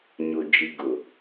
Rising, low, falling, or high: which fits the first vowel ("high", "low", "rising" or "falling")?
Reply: low